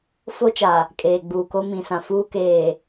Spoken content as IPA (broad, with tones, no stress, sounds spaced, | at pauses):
f o˦ t͡ʃ a˨ | kʼ eː˨ ɡ͡b uː˨ k o˦ m ĩ˨ s ã˨ f uː˦ k eː˨